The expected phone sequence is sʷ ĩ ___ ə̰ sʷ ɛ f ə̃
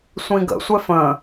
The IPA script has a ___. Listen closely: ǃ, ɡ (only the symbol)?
ɡ